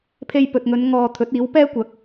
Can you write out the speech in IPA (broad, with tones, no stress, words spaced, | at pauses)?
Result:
pʰe˧jpɵ˨t̚ŋɵ˨˧n ŋɔː˧ t̪ʰɵ˨˥t̚iː˨˥wpɛː˥kʷɐ˨˥k̚